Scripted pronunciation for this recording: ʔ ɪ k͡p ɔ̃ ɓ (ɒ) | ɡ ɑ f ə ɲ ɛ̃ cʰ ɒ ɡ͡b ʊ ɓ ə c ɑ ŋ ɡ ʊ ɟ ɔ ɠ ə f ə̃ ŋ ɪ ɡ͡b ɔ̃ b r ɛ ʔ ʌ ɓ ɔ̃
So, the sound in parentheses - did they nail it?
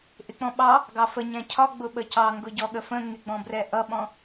no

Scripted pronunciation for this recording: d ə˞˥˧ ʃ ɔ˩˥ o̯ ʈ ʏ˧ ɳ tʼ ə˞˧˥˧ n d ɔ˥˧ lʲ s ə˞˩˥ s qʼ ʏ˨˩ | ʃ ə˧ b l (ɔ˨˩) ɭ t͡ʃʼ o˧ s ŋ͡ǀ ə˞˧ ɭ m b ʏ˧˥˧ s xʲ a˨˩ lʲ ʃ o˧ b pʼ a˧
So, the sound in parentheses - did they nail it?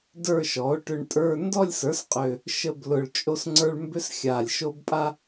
no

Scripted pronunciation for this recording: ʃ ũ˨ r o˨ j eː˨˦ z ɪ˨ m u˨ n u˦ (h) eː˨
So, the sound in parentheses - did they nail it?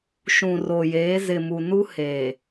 yes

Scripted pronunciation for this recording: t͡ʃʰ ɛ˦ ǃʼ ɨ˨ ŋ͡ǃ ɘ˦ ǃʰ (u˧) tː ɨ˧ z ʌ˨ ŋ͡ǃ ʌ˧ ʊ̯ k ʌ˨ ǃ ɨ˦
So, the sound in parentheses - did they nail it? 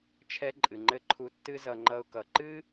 yes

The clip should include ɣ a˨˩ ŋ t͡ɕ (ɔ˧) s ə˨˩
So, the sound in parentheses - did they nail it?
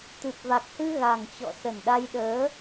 no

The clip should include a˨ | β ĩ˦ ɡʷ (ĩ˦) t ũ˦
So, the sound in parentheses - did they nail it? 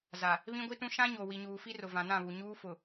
no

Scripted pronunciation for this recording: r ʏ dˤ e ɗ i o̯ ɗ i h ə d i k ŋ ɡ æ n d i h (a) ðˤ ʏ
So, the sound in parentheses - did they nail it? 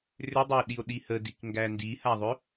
yes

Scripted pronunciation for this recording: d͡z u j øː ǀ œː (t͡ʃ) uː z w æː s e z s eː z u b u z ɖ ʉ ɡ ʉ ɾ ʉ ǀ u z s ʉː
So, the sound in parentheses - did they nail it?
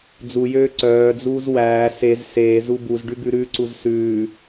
no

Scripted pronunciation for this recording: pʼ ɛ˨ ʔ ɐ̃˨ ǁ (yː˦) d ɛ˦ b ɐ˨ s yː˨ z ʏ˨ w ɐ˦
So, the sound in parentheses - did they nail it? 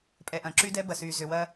no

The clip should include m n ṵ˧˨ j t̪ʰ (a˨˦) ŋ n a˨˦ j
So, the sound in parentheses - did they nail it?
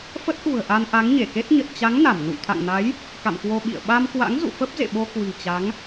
no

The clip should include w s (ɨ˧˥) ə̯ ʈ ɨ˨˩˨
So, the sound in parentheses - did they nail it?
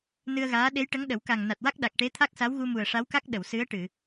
yes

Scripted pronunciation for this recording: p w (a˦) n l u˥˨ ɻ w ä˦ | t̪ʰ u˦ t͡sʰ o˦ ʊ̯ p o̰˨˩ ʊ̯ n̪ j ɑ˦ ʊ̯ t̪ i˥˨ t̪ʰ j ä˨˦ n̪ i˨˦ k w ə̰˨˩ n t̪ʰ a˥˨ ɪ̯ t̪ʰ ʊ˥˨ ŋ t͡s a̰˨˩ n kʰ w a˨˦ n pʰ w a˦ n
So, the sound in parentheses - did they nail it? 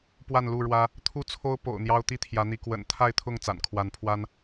no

